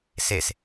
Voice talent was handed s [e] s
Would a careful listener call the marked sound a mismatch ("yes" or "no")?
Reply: no